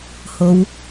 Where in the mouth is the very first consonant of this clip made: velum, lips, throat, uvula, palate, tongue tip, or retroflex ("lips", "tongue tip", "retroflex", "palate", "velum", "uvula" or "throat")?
throat